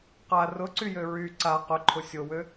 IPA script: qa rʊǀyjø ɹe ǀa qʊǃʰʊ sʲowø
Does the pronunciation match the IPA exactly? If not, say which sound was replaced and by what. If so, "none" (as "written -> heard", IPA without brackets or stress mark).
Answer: e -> y